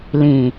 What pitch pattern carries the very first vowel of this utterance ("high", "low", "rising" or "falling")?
low